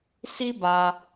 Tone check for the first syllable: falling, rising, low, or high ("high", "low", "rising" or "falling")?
high